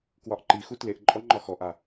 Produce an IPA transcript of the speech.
k w ɒ ʔ ǃ i x u t l e ʔ ǃʼ ɔ ŋ͡ǃ ɒ x ɔ ʔ a

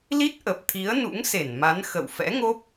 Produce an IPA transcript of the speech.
l i˦˥ t̚ ʔ ə˨˩ p̚ t̪ʰ i˨˦ ə̯ n ṵ˧˥ ŋ s e˧˩ n m a˨˦ n x ə̰˧˨ w f ɛ̰˧˥ ŋ o˦˥ p̚

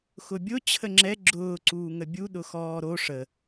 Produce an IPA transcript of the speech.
x ʊ bʲ ʊ t͡ɕʰ ə ŋ͡ǁ ɛ ɡ͡ǁ ʊː ǀ uː ŋ ə bʲ u ɗ ʊ x ɔː ɾ o ʂ ə

